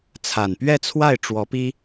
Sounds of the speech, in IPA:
t͡sʰa˨˩npɥɛ˥˧t͡sʰwa˥˩ɪ̯ ʈ͡ʂwɔ˧˥pi˥

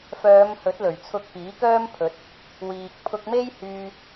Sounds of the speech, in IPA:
fœː˨˧m hɵ˨˥t̚lɵ˨˩ɥt͡sʰʊ˧k̚ piː˨˥kœː˥mpʰɵ˨˥t̚ | wiː˨k̚ pʰʊ˧k̚me˥j hyː˧

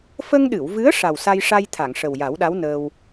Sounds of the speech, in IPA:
fə˧ŋɗɨ˨˩˨wvɨ˧˥ə̯ ʂa˨˩wsa˧jʂa˧j t̪ʰa˨˩˨ŋʂə˨˩wja˨˩˦wɗa˧˥w nəː˧w

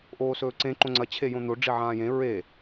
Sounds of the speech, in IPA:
ʔoːsɵːǀẽ ǃõŋ͡ǀɐ t͡ɕʰejõn̪o ɖ͡ʐiʕãːjẽ ɹe

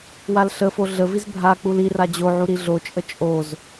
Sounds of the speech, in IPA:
walɬəfo ɮəviz bʱa k͡pulira d͡ʑoʕu ɾiɮot͡ʃʼə t͡ʃʼoz

